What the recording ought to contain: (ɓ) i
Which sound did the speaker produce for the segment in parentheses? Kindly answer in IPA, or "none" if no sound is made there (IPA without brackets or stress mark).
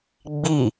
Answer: ɡ͡b